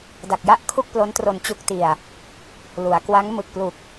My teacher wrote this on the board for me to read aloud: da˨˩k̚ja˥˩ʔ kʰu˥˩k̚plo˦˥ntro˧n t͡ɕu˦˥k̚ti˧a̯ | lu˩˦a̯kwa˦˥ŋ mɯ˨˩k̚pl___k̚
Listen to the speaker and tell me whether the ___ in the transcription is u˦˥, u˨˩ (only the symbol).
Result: u˨˩